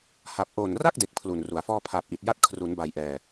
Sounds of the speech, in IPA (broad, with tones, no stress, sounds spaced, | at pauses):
h a˨˩ p̚ ʔ oː˨˩ n r a˥˩ k̚ d e˦˥ k̚ pʰ l u˨˩ n r u˩˦ a̯ f ɔː˥˩ pʰ aː˨˩ p̚ ʔ i˨˩ t̚ j a˦˥ t̚ kʰ r u˩˦ n b a˨˩ j ʔ ɛː˨˩